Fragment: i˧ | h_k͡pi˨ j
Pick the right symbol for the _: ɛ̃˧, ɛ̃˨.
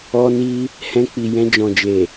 ɛ̃˧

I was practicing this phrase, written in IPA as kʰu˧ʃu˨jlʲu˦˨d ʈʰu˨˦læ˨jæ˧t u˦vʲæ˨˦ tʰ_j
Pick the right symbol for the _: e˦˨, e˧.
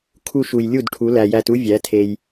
e˧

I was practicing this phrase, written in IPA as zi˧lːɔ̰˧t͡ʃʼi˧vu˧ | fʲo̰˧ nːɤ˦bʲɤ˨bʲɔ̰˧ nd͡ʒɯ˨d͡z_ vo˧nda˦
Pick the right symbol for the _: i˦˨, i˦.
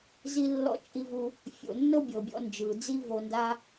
i˦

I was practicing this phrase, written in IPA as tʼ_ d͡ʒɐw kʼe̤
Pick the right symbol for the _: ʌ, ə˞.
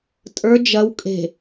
ə˞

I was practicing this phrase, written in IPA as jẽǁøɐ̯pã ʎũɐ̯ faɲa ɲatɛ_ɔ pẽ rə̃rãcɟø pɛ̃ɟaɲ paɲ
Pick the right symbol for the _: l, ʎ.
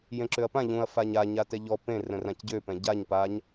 ʎ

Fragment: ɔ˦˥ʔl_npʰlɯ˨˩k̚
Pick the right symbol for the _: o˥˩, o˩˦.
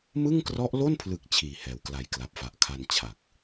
o˥˩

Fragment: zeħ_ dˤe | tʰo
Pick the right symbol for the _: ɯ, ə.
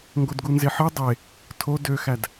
ɯ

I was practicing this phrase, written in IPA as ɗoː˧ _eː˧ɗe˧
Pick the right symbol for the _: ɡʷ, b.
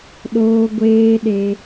ɡʷ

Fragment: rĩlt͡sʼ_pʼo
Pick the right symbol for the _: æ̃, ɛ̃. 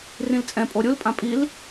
ɛ̃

